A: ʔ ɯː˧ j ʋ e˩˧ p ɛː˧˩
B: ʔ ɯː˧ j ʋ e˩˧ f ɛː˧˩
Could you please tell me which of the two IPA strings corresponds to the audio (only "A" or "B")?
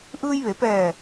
A